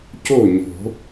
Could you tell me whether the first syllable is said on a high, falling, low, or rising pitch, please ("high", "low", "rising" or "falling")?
falling